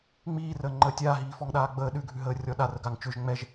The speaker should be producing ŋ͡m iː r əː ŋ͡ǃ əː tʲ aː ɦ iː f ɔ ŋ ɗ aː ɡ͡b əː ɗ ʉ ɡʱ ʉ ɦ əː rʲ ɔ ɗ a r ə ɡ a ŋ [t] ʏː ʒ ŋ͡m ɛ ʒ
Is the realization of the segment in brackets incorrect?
yes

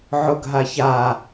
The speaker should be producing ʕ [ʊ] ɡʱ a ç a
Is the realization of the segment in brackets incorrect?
no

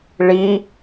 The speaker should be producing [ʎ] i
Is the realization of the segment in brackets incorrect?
yes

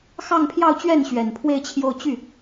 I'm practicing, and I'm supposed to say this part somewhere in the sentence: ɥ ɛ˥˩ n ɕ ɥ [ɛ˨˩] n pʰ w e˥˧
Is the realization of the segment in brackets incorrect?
no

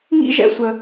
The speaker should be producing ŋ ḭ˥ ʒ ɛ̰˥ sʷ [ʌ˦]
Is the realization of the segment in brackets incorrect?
yes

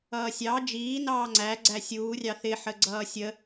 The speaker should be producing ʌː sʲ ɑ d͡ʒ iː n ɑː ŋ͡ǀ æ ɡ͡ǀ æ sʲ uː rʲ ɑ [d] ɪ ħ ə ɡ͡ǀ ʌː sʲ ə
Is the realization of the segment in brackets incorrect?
yes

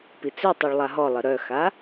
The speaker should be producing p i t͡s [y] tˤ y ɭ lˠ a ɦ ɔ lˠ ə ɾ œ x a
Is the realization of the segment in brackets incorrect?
yes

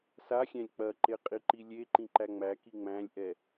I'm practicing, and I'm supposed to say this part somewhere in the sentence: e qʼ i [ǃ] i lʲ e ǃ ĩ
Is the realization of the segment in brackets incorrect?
no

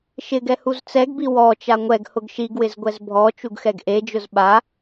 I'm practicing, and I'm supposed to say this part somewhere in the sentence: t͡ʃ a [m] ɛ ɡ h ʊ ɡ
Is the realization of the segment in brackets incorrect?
yes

